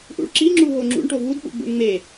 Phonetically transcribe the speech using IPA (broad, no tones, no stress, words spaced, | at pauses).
ʔṵɭǁiŋ͡ǁu ɦoŋ͡ǁṵɳʈo vudɓṵɡ͡bṵɳ ŋ͡me